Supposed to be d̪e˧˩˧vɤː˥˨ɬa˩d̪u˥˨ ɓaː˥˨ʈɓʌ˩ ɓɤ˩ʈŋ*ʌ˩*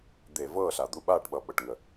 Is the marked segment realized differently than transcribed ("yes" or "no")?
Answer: yes